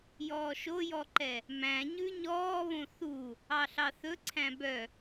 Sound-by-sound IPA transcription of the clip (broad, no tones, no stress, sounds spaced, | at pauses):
j ɔː ʃ o j ɔ ǃ ɛ | m æ̃ ɲ ʉ ɲ ɔː β õ θ u | ɑ ɬ ɑ θ ɵ ǀʰ æ̃ b œ